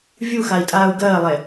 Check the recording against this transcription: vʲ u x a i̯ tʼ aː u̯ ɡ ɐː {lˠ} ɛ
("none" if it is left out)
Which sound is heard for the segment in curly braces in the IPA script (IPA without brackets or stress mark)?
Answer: lˠ